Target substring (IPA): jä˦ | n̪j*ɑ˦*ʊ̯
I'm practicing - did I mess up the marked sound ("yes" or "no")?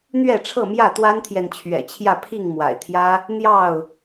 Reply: yes